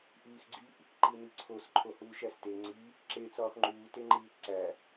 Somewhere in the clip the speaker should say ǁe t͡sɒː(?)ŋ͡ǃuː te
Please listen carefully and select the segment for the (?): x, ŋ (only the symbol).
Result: x